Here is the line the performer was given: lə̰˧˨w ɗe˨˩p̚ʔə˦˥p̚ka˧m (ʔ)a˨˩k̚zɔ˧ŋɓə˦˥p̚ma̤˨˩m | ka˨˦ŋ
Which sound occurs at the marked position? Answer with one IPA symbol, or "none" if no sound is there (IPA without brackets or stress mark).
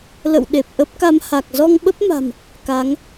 h